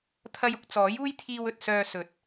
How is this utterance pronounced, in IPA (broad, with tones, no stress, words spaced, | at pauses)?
t̪ʰɐ˧jʊ˧k̚ t͡sɔː˨˥juː˥jt̪ʰiː˧wɵ˨t̚ sœː˧ sɵ˨˥t̚